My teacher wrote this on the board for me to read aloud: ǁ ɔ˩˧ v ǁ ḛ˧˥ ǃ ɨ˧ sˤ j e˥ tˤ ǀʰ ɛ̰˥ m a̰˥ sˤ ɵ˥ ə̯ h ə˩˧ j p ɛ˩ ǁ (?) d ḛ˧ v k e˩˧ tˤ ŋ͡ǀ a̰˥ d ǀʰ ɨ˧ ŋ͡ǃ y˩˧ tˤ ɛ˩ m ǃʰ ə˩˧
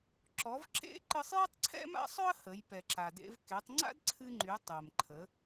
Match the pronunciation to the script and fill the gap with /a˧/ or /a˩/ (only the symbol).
a˩